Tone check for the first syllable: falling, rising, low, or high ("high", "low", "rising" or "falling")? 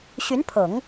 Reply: rising